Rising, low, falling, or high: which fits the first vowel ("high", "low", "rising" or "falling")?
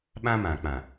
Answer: high